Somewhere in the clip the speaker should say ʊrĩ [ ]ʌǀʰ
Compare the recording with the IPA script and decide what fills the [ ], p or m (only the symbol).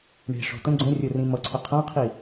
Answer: m